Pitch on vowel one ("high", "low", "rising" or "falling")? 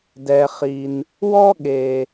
low